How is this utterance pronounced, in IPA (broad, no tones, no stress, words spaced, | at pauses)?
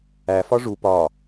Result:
æ fɒʐu pɒ